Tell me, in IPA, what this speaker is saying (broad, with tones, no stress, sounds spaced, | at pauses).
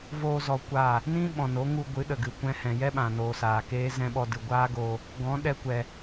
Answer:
v oː˧ z ɔ˧ kʷ aː˦˨ | n ĩ˦ ɓ ɔ̃˨ n o˨˦ ŋ u˧ ɡʷ ɨ˨˦ ɗ ə˨ ɡ ɨ˨ kʷ ɛ̃˧ h ɛ̃˨ j ɛ˦ ɓ ã˨ n oː˨ s aː˨ k eː˦ z ɛ̃˦ ɓ ɔ˧ d ɨ˨ ɡʷ aː˦ ɡ oː˧ | ɡ ɔ̃˨˦ ɗ ɛ˧ kʷ ɛ˨